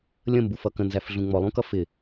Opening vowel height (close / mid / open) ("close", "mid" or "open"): mid